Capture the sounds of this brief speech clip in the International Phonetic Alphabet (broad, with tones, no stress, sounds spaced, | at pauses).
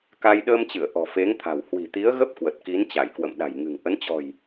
k a˧ j ɗ əː˧ m t͡ɕ ɨ˧˩ ə̯ ʔ ɔ̤˨˩ f e˨˦ ŋ t̪ʰ a̤˨˩ w h w i̤˨˩ t̪ i˨˦ ə̯ ɣ ə˦˥ p̚ k w ə˨˩ t̚ k i˨˦ n t͡ɕ a˧˩ j k w ə̰˧˨ m ɗ a̤˨˩ j ŋ ɨ̤˨˩ ŋ ʔ ə˨˦ n t͡ɕ ɔ̤˨˩ j